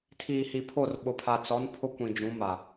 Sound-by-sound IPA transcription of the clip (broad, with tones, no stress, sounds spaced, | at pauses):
tʰ iː˨ h i˨ pʰ o˦˨ r ɓ ʊ˨ pʰ a˨ t͡s ɔ˨˦ n pʰ ʊ˦ kʷ ĩ˨ d͡ʒ ũ˨˦ m a˨